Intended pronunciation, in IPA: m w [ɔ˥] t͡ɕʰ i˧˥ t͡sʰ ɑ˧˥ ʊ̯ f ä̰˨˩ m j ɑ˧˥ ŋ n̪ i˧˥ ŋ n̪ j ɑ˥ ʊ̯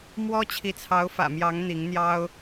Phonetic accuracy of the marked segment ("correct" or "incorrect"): correct